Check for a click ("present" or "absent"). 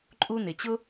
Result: present